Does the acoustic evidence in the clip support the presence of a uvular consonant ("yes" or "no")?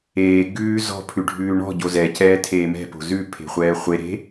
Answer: yes